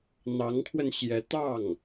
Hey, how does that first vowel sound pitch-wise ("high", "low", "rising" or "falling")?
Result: rising